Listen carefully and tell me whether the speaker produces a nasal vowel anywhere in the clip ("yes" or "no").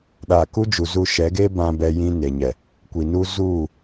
yes